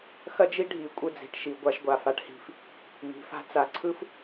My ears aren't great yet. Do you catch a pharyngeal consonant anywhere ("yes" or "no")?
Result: no